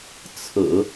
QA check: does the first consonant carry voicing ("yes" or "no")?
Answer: no